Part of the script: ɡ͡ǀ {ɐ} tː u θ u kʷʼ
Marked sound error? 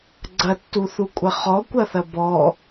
no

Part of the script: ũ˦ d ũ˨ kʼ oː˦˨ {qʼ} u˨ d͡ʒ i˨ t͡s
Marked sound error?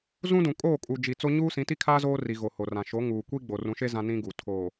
yes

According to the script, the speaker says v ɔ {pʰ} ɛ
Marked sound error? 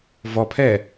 no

